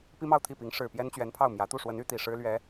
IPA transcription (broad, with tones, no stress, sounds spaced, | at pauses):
p i˥ m ɑ˥˧ ʊ̯ t̪ʰ i˥˩ p i˧˥ ŋ ʂ ɻ̩˨˩ p j ɛ˥ n t͡ɕ ɥ ɛ˧˥ n pʰ ɑ˥˩ ʊ̯ m j ä˧˥ t̪ u˥˩ ʂ w ə˧˥ n y˥ t̪ i˨˩ ʂ ɻ̩˥ l ɥ ɛ˧˥